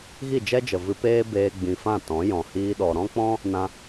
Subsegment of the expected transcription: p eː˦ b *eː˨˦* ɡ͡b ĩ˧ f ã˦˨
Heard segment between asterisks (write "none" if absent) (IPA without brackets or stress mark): eː˧